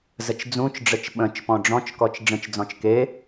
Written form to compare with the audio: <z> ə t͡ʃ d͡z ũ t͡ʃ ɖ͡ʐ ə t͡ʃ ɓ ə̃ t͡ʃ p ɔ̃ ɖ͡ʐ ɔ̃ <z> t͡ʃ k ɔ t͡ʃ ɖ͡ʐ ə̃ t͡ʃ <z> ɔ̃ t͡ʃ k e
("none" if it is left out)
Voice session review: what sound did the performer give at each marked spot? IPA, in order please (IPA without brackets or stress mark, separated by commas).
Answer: z, none, d͡z